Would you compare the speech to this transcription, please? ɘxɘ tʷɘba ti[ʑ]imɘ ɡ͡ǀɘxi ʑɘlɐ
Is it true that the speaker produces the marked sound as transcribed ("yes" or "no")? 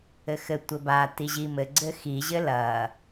yes